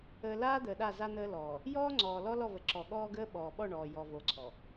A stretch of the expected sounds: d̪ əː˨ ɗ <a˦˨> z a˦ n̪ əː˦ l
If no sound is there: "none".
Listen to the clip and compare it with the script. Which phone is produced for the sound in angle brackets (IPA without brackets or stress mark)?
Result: a˦˨